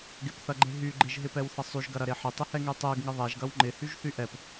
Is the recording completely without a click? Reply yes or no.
no